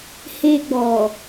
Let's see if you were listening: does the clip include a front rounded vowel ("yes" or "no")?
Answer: no